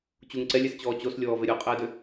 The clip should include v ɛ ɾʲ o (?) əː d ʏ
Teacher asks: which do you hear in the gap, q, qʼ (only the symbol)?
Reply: qʼ